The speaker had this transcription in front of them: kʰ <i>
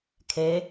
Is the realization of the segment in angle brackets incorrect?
yes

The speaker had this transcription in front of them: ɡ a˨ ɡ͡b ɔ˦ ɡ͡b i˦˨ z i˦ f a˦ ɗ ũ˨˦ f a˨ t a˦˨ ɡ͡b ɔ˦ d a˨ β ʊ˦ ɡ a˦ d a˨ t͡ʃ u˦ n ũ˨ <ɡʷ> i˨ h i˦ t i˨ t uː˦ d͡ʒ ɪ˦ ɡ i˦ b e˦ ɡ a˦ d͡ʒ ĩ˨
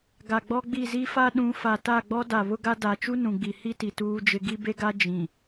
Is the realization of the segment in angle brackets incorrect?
yes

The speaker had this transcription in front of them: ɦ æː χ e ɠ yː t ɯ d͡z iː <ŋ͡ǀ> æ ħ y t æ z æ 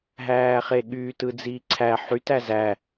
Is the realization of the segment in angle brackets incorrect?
yes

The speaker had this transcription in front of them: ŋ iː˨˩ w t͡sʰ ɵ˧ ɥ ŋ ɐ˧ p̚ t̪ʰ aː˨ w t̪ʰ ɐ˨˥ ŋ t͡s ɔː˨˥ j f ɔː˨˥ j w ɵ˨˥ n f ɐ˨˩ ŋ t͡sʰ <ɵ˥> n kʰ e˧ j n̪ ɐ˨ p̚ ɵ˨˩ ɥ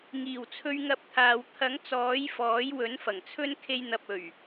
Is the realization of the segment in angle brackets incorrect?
no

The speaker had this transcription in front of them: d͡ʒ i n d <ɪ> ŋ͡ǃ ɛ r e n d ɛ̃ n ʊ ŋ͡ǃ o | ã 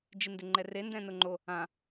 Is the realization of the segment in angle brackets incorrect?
no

